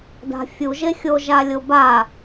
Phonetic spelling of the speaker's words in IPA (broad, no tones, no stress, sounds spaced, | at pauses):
d a̤ fʲ u ʒ e xʲ o ʒ a lʲ o b a